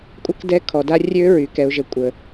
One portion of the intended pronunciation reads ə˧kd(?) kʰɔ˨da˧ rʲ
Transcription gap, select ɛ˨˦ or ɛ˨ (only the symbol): ɛ˨˦